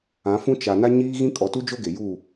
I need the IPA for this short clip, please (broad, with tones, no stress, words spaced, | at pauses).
ã˨˦fũ˦ t͡ʃa˨ na˦ɲiː˦ɣĩ˦ kʼɔ˨tu˦d͡ʒo˦ ɡe˨ju˦˨